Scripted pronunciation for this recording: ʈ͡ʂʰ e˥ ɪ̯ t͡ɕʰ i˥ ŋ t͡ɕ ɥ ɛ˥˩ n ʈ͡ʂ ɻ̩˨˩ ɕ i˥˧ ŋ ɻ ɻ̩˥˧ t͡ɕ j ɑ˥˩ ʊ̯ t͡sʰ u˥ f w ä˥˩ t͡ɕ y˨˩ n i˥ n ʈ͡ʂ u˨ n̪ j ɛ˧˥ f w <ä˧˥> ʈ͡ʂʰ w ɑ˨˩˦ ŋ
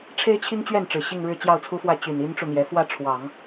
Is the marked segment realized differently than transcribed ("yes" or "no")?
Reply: yes